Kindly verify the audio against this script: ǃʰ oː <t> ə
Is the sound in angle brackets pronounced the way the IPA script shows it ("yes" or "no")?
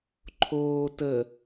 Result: yes